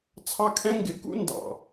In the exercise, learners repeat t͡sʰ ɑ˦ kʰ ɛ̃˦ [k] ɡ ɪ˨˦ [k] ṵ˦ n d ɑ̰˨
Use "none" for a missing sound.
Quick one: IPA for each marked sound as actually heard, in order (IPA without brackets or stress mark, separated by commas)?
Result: ŋ, k